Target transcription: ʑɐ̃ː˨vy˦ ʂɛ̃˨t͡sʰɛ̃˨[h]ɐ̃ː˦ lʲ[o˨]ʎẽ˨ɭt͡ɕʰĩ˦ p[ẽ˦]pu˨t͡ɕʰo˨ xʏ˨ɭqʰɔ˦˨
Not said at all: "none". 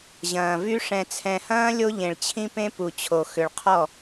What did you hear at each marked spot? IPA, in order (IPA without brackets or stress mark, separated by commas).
h, o˦, ẽ˦